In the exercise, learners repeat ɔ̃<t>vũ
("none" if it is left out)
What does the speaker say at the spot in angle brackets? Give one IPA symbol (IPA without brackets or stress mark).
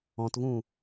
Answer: t